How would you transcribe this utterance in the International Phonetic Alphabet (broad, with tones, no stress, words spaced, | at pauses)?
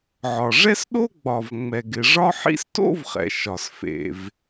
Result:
ʕɒ˩ʐɛ˥s ɗo˥ɡ͡bɒ˩v ŋ͡mɛ˩ɡɪ˩ ʐɒ˥ħḭ˥s to̰˥vχɛ̰˩ ʃɒ˩s fḛ˩v